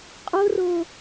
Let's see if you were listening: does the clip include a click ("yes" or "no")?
no